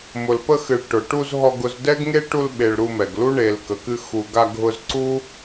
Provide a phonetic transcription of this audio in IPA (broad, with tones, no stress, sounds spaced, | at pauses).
m ʊ˨ l p ə˧ x ɨ˨ ɭ ʈ ʊ˨ ʈ u˧ z ɦ ɔ˧ ɡ ʊ˧ z d ɛ˦ ɡ ŋ e˦ ʈ u˧ l ɓ e˨ ɭ ɾ u˧ m ɛ˨ ɡ l u˦ ɳ e˨ l k ə˨ k ɨ˧ x u˨ ɡ a˧ ɡʱ ʊ˧ z ǀ u˦